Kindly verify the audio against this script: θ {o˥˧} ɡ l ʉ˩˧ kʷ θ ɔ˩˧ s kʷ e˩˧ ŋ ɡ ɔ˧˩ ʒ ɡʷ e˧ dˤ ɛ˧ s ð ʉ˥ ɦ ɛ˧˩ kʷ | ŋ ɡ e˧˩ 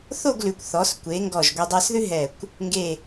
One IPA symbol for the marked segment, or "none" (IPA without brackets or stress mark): o˥˧